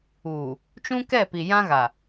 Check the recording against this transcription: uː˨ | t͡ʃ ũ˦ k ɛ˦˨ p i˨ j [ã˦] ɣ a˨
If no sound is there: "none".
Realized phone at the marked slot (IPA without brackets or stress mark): ã˦